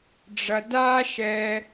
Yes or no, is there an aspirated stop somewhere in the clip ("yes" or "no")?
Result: no